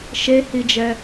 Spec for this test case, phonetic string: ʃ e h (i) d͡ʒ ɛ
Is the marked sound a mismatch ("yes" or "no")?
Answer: no